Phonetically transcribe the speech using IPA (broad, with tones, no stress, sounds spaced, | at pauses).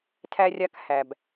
tʰ æ˧ rʲ a˧ k h æ˩ b